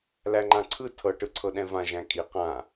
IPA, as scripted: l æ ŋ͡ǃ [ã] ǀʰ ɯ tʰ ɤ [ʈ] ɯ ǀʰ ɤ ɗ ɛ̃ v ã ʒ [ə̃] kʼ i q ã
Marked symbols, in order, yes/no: yes, yes, no

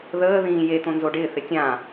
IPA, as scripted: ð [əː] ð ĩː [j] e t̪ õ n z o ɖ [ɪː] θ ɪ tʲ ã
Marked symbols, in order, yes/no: yes, yes, yes

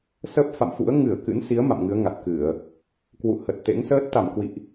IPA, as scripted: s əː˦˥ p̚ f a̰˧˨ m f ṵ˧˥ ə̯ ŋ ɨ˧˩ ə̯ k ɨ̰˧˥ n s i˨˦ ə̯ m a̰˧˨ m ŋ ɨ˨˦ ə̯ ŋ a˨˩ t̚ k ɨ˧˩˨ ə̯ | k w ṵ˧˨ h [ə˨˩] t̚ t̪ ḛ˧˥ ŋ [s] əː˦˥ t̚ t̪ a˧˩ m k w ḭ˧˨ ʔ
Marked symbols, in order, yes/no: yes, yes

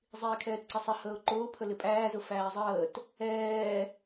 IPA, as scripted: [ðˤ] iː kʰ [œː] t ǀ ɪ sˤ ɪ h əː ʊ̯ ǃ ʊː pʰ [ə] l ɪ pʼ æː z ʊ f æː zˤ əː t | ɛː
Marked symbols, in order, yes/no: no, no, yes

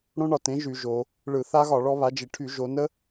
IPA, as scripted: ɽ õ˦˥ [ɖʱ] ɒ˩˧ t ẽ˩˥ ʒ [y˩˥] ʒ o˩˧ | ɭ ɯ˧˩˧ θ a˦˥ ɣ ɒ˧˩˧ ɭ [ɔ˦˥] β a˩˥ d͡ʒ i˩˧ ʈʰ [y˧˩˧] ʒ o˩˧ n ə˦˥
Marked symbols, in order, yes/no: no, no, yes, yes

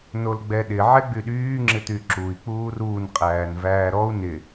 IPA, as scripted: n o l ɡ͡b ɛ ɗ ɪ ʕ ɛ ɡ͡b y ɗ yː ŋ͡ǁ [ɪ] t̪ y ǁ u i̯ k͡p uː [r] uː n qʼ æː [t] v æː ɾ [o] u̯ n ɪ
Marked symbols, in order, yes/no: yes, yes, no, no

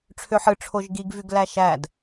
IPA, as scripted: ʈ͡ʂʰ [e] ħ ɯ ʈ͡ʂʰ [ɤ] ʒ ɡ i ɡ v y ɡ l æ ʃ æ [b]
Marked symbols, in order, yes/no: no, no, no

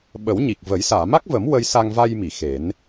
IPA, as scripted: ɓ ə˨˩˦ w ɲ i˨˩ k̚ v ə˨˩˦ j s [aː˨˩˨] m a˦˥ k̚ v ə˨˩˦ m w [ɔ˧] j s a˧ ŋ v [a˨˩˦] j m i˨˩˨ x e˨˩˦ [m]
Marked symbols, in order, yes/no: yes, no, no, no

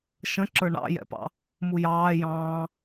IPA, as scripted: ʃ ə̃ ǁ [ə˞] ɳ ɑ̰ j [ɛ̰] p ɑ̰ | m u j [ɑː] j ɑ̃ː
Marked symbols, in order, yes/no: yes, yes, yes

